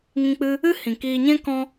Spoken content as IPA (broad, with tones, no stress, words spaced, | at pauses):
ŋĩ˧k͡pɨ˧ | ɨ˦hĩ˨ kiː˧ɲɛ̃˦ kɔ̃˦